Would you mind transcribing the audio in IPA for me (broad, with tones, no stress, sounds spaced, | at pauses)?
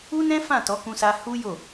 u˦ n ɛ̃˦ f ã˦˨ t ɔ˨˦ k ũ˧ s a˧ h u˦ j o˦˨